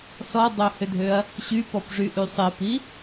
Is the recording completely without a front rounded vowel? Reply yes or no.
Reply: no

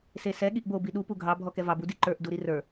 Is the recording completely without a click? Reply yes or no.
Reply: no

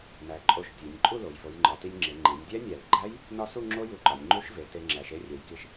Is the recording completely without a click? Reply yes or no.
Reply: no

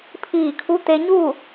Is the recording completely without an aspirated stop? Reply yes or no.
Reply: no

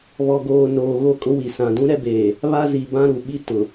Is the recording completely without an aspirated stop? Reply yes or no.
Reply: yes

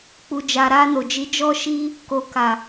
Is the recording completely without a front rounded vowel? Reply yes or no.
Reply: yes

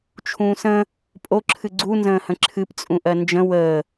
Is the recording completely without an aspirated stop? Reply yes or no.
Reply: no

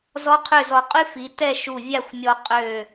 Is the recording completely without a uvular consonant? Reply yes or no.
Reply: no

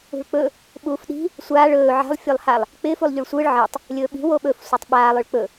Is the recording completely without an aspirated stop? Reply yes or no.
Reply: yes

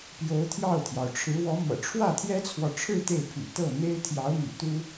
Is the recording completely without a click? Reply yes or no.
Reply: yes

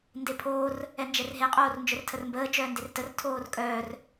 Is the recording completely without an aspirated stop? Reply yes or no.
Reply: no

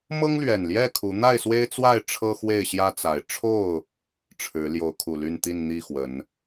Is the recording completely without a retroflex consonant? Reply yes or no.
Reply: no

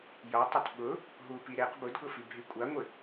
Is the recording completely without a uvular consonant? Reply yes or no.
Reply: no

